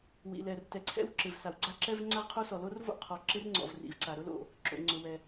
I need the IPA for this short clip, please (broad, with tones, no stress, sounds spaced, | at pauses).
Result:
w ḭ˩ l ɛ˩ r t ɛ˩ ǀʰ ɛ̰˥ w ǁ ɪ˩ v s a˩ w ɡ͡ǀ a˥ ǁ ɛ˥ v ŋ͡ǀ a˥ ʁ qʰ o˥ s ɔ˩ l o˥ r v o̰˥ qʰ ɔ˩ ǁ ɪ˥ r ŋ͡ǀ ɔ̰˩ v r ḭ˩ v ǀ a˩ ɾ ʊ˥ l o̰˩ | ǁ o̰˩ ŋ͡ǀ ʊ˩ w ɛ˩